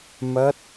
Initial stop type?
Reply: plain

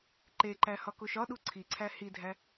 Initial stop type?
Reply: click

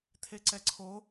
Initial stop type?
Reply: aspirated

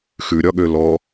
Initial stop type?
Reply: implosive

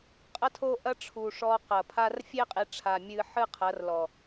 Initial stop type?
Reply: ejective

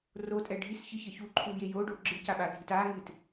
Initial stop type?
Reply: ejective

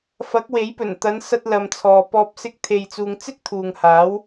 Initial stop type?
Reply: plain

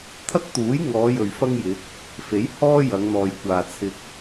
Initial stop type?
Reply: aspirated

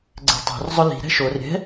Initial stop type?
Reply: click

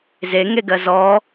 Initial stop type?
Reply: plain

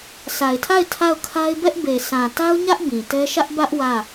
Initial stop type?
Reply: aspirated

